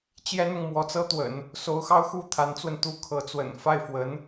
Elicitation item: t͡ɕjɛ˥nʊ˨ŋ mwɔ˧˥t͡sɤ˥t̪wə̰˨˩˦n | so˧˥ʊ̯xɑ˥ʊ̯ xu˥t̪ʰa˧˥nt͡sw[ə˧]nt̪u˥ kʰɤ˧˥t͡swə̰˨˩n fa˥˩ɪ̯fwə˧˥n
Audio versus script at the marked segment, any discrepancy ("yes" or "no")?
no